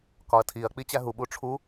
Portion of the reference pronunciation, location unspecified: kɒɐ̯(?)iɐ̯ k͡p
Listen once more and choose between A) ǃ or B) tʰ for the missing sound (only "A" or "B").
B